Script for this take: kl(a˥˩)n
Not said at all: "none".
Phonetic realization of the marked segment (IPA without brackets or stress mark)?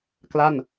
a˥˩